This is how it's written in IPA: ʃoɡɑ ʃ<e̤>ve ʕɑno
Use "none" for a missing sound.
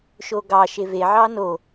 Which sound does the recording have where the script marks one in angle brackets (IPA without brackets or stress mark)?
e